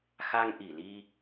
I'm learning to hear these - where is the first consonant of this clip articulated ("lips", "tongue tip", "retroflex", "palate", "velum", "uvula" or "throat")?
velum